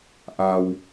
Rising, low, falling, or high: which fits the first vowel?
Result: low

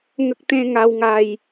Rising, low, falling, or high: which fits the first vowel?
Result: high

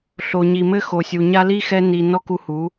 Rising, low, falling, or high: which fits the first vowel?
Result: low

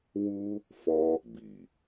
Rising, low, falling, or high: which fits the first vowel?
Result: high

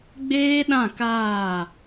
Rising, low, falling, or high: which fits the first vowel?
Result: high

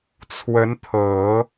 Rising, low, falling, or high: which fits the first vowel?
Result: rising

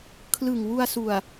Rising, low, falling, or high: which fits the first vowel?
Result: low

